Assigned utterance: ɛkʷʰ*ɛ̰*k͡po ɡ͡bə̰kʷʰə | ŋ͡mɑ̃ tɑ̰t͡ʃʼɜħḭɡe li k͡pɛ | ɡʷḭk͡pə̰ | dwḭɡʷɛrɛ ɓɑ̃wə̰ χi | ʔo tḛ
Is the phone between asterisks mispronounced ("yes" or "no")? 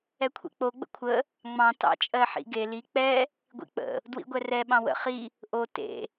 yes